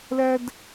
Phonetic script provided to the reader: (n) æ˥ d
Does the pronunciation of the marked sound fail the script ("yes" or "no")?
yes